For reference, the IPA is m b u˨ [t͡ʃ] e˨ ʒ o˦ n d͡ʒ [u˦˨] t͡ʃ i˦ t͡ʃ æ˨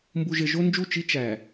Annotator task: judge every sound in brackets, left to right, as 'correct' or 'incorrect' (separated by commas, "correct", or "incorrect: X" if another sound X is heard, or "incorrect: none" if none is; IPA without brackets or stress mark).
incorrect: ʒ, correct